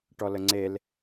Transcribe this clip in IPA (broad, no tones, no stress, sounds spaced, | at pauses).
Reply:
ʈ ɔ l ə ŋ͡ǀ e l